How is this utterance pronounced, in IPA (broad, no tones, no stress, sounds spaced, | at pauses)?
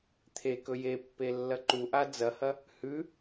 t̪ʰ e k ɵ j e pː e lː ɐ ǃ u ʔ a d͡z ɐ h ɐ | h ʉ